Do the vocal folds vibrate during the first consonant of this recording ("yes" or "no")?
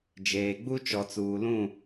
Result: yes